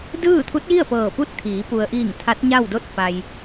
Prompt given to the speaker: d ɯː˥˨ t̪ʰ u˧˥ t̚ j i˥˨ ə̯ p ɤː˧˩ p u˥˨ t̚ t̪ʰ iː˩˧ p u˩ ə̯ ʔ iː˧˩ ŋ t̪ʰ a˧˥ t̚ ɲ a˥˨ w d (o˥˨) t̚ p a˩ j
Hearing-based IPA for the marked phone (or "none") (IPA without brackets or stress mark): o˥˨